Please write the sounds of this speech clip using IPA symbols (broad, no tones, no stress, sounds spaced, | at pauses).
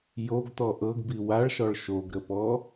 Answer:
j o ɡ t̪ ɔ ʔ ɤ ɡ b i w a ɭ ʃ ɔ ɭ ʃ o ɡ ɾ ə p ɔ